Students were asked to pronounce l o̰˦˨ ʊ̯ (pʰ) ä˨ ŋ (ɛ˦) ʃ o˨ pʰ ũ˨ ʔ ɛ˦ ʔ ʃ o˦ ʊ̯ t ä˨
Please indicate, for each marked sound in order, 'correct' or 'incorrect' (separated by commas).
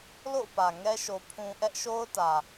incorrect, correct